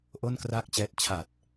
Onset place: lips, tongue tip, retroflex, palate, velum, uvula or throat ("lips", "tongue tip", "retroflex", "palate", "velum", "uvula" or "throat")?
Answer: throat